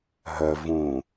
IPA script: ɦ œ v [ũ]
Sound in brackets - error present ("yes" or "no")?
no